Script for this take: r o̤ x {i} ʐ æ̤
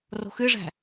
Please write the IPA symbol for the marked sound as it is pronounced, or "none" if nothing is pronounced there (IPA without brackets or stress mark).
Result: ɨ